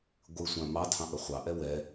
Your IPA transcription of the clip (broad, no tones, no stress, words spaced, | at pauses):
ɡʷɨsʷã mɑtʰɑ̃ ʔəχʷɑʔɛ wɛ